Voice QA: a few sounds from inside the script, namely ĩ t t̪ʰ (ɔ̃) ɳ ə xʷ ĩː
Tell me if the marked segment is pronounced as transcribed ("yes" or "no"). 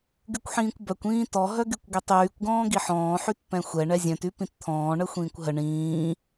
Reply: no